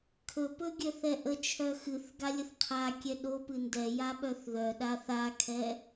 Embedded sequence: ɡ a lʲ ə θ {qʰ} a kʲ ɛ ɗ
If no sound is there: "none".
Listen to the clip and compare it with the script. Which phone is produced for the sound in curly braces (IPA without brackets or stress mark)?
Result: qʰ